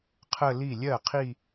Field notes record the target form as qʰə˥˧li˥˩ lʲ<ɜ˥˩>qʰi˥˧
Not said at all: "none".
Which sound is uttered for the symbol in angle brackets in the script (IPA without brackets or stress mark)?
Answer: ɜ˥˩